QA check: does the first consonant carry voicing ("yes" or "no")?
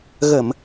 yes